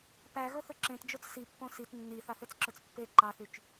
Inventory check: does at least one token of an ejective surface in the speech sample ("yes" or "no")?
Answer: no